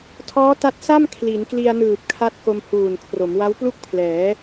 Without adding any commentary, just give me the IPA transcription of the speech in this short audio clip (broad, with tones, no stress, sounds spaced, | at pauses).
tʰ ɔː˦˥ t a˦˥ t̚ s a˥˩ m kʰ l i˩˦ n k l i˧ a̯ n ɯː˨˩ p̚ kʰ a˦˥ t̚ k o˧ m h uː˨˩ n kʰ r o˩˦ m w a˦˥ w p l u˥˩ k̚ pʰ l ɛː˩˦